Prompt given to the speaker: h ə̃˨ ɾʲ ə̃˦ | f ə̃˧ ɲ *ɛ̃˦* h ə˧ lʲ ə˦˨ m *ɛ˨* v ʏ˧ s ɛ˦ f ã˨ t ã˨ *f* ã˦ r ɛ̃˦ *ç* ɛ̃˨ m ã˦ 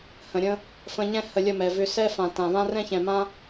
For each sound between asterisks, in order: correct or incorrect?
correct, correct, incorrect, correct

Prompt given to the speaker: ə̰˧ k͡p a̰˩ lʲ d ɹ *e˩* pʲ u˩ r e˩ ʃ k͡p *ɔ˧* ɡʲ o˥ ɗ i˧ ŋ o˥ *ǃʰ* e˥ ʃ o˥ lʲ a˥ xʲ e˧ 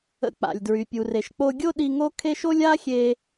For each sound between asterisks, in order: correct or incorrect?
incorrect, incorrect, incorrect

